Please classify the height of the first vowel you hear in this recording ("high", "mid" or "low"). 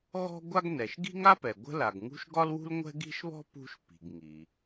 mid